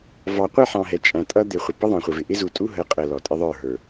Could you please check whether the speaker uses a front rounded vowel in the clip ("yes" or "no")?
no